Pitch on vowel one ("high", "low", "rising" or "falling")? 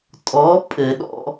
rising